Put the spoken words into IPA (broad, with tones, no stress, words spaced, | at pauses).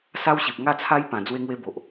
sa˦wɕi˨p̚ ŋa˥˧t͡sʰa˦jpã˨˩ d͡zwe˦ŋwe˦bo˨ʔ